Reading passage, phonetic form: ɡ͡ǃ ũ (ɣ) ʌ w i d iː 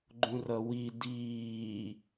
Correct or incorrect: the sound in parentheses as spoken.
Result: incorrect: r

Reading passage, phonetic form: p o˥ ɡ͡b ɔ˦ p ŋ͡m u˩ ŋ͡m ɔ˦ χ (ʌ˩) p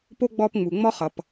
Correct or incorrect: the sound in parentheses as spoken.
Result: correct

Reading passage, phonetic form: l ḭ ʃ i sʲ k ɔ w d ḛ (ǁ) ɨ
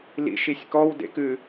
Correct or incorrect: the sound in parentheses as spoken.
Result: incorrect: k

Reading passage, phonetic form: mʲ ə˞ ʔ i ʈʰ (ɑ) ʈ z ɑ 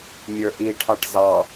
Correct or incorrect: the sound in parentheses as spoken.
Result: correct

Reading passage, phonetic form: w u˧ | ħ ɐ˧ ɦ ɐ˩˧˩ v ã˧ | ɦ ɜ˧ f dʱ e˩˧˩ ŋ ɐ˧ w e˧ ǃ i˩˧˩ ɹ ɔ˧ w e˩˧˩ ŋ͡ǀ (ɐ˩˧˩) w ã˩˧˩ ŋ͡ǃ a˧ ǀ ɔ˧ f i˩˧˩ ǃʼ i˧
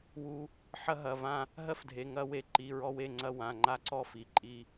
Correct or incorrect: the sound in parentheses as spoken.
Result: incorrect: ɐ˧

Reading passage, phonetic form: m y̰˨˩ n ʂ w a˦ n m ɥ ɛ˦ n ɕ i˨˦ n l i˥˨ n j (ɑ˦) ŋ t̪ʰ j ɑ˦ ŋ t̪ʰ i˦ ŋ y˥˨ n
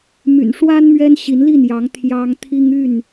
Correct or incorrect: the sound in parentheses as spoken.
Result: incorrect: ɑ˨˦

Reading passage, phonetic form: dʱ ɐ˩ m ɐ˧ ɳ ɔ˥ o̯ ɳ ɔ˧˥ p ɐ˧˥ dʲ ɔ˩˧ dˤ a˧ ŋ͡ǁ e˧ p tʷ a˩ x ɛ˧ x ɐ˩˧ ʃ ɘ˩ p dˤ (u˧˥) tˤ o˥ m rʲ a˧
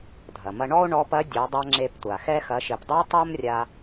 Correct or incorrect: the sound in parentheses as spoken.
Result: correct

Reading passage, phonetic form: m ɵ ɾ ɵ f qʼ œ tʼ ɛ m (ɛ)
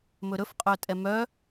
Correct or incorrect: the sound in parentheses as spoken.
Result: incorrect: œ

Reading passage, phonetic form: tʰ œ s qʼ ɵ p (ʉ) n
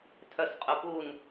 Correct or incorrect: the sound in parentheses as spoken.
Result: incorrect: u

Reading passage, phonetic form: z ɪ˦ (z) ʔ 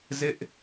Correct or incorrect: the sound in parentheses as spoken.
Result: incorrect: none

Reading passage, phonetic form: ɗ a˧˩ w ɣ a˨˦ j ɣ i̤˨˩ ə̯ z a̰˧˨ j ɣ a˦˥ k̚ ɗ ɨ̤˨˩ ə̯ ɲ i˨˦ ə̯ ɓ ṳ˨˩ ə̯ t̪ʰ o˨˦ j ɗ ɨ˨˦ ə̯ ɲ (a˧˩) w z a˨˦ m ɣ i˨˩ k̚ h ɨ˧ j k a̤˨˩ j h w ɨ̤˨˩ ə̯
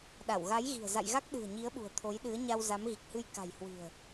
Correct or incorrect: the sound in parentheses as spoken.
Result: incorrect: a˧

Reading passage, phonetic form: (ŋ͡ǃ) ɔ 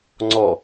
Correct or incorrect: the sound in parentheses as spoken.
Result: incorrect: ŋ͡ǀ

